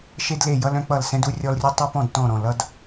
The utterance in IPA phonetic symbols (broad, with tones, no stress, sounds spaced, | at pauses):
ʃ e˥ d l e˥˨ j ʌ˥ l œ̃˥ k͡p ʌ˥˨ l s ɛ̃˥ d u˥ rʲ ɔ˥ l rʲ u˥ tˤ e˥ p ɔ̃˥˨ d t ɔ̃˥˨ ɾ ɔ̃˥˨ l ʌ˥ d